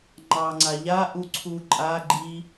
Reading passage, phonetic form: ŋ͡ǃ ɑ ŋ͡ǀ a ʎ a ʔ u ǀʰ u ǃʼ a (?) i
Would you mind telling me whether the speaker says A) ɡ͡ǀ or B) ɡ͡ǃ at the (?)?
B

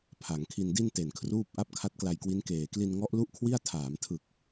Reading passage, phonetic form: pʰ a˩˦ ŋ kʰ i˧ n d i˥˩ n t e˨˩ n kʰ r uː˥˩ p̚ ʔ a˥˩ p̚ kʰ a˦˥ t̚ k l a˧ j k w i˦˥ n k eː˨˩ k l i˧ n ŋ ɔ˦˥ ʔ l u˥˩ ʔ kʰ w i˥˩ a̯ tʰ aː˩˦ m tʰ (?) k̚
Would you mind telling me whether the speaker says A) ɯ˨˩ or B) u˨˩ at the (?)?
A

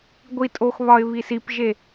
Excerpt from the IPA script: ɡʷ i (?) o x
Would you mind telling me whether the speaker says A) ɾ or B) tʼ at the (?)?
B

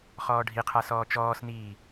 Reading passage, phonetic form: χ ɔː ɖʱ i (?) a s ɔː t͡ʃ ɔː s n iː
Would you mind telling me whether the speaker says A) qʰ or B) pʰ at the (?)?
A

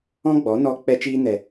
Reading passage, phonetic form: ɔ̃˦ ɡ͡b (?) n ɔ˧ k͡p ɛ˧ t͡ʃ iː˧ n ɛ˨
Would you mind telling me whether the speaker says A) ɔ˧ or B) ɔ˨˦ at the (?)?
B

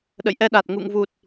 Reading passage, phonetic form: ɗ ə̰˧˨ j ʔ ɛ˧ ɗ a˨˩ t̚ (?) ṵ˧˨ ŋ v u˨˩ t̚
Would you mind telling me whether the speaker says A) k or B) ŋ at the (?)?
B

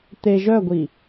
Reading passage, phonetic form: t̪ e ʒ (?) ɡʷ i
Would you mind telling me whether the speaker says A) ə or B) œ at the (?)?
B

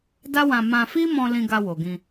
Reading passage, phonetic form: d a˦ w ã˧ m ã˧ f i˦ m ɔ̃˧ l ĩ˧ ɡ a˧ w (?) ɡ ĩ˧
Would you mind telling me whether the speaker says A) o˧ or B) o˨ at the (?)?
B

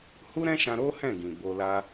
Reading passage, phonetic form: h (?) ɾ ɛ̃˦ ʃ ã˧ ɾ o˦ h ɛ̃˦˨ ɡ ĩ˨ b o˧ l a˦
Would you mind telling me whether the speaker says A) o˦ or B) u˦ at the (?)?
B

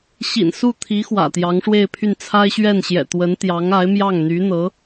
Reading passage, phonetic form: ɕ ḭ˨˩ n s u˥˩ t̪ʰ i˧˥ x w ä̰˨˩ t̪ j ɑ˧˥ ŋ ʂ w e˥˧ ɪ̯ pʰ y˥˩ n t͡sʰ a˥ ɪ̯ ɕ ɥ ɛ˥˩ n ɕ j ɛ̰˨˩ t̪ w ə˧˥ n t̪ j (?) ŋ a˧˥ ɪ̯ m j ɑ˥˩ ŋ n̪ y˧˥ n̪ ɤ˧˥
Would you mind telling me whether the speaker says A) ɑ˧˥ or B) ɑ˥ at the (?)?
A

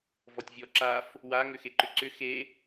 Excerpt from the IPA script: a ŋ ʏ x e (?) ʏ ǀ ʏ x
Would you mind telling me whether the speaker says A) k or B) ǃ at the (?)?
B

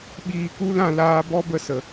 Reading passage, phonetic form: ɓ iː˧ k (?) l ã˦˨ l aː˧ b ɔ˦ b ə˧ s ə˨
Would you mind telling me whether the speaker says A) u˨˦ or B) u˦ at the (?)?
B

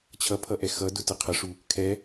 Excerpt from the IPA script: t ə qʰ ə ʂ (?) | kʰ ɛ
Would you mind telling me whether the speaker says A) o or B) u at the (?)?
B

